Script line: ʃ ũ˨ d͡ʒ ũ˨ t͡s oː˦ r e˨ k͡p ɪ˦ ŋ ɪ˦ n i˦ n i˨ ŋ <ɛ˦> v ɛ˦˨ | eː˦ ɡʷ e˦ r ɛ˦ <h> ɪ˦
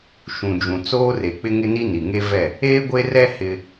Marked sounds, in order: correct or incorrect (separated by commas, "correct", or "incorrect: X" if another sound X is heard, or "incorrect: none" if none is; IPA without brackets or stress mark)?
incorrect: e˦, correct